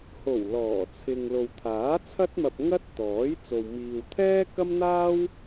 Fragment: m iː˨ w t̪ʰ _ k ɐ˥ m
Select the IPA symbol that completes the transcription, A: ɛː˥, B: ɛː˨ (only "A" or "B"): A